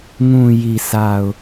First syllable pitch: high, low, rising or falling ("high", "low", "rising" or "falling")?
low